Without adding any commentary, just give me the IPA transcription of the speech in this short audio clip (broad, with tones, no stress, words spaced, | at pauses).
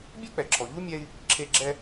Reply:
bʲɛ˥k͡pɛ˩ǁʰɔ˩ ʎu˥mʲɛ˧i̯ | ǁʰe˧ɡ͡ǁɛ˧